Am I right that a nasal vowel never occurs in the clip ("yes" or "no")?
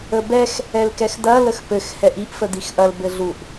yes